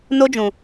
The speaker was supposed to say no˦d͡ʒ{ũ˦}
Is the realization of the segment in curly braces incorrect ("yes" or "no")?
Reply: yes